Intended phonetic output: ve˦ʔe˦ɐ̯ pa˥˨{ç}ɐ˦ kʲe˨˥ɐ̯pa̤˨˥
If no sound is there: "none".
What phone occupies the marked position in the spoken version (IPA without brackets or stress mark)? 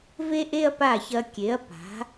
ç